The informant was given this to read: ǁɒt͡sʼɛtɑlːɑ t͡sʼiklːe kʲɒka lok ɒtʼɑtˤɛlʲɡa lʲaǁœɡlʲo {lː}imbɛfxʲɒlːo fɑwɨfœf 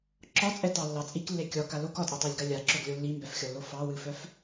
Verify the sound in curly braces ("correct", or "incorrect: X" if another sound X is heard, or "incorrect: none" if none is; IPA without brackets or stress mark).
correct